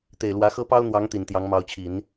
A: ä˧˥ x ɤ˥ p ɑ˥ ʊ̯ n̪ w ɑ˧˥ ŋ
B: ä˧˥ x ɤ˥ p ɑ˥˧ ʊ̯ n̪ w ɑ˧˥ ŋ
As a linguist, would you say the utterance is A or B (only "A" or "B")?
A